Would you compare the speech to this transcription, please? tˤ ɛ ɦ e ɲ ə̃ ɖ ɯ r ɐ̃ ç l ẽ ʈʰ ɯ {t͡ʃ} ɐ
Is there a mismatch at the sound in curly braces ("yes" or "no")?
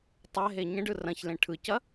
yes